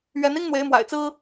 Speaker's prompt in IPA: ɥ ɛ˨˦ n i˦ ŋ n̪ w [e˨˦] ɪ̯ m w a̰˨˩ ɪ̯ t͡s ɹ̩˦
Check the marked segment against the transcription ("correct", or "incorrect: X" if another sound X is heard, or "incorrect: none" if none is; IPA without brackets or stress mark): correct